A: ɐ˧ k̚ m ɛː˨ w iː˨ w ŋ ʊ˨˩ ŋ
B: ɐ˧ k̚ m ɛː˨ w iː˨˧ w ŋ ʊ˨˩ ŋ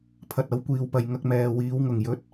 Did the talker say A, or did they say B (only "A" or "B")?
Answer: B